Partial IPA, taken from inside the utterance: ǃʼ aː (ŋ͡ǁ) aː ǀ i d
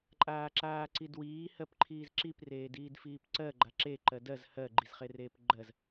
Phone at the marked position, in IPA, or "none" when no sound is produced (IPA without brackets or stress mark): ǁ